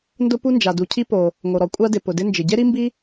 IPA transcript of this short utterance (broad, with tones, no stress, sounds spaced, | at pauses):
n d ʊ˥ p u˥ n d͡ʒ a˩ d u˩ cʰ i˥ p o˩ | ŋ o˩ ɾ ɔ˩ kʷʼ a˥ d ɪ˩ p ʊ˩ d ɪ˥ n d͡ʒ ɪ˩ ɟ e˥ ɾ i˥ m b i˥